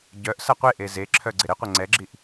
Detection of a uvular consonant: present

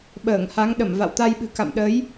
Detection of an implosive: present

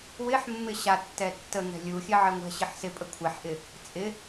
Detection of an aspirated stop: present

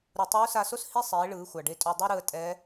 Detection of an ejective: present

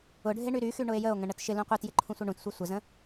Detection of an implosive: absent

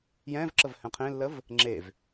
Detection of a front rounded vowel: absent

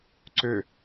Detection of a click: present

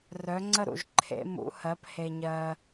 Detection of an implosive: absent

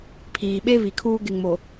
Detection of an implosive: present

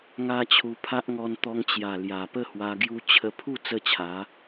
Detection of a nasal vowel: absent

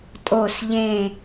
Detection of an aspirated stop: absent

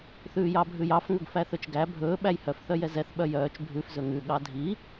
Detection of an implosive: present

